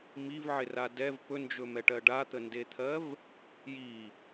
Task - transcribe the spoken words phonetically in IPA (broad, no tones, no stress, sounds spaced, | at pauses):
m i v ʕ ɪ r a d ɛ v p ɵ n d͡ʒ ɵ m ɛ ʈ ɜ ɖ a t̪ ə n d e t̪ʰ ɜ v | j i